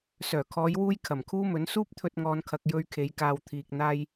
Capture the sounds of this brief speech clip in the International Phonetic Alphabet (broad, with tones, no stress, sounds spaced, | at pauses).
s œː˨˩ kʰ ɔː˨˧ j w uː˧ j kʰ ɐ˨˩ m kʰ uː˥ m ɵ˨˥ n s uː˥ p̚ t̪ʰ ɵ˧ t̚ ŋ ɔː˨ n kʰ ɐ˨ k̚ j ɵ˧ ɥ kʰ e˨˧ j k aː˨ w t̪ʰ iː˧ k̚ n̪ aː˥ j